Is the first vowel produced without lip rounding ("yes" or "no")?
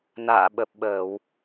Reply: yes